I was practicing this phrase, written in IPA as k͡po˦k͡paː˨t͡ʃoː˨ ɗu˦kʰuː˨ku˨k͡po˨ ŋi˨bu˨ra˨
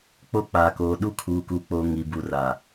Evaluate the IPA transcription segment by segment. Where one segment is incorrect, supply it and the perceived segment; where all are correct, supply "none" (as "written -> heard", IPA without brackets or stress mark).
t͡ʃ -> k